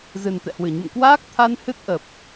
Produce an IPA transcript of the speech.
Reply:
z ɨ˨˩ n t̪ ɛ̰˧˨ h w ɨ˧˩ ɲ ṵ˧˨ m k w aː˦˥ k̚ t̪ʰ a˧ n h ɨ˦˥ t̚ ʔ ə˨˩ p̚

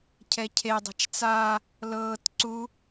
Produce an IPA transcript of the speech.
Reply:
cʰ ɛ cʰ e dˤ a̤ t͡ʃ t͡s a | l ɤː t ǀ u

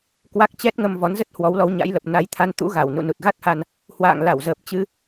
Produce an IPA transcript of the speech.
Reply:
k w a˦˥ k̚ t͡ɕ ɛ˦˥ t̚ ŋ ə˧ m v ɔ˨˦ n z ə˦˥ t̚ h w ɔ˨˦ w l ɔ˨˦ w ɲ a̰˧˥ j l ə˨˩ p̚ n a˧ j t̪ʰ a˧ n t̪ ṵ˧˥ ɣ a˧˩ w n ṵ˧˨ n u˨˩ t̚ ɣ a˦˥ t̚ h a˧ n | h w a̰ː˧˨ ŋ l a˧˩ w z əː˨˩ p̚ t͡ɕ ɨ˧

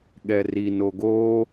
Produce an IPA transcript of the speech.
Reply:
ɠ ɛ r i n o ɡ o

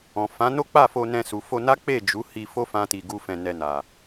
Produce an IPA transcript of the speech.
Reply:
ɔ̃˨ f ã˨˦ n o˦ k͡p a˦˨ f o˧ n ɛ̃˧ s u˨ f o˧ n a˦ k͡p e˦˨ d͡ʒ u˨˦ h i˧ f o˦ f ã˦ t i˧ ɡ u˦ f ɛ̃˧ n ɛ˧ n a˨

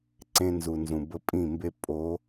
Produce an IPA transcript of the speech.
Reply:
ǀ ẽ˦ n z u˨ n z ũ˨ b ə˦ pʼ ĩ˦˨ m b e˦ pʼ o˨˦

